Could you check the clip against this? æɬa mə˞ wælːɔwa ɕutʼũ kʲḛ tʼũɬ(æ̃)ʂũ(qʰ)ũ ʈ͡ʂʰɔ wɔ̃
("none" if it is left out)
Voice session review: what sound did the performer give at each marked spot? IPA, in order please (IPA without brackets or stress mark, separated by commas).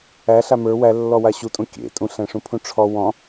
æ̃, pʰ